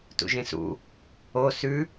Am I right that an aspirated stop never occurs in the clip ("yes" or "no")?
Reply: yes